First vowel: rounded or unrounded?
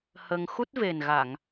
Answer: unrounded